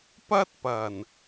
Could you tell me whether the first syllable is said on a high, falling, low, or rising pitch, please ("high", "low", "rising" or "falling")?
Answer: high